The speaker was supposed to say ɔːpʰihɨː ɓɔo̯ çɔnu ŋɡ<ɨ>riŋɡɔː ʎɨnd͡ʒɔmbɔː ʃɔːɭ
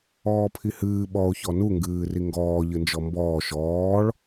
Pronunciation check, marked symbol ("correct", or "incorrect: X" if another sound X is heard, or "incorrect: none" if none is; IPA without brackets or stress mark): incorrect: ɨː